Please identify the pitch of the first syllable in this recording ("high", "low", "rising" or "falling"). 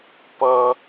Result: high